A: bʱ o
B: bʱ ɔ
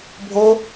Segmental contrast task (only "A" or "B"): A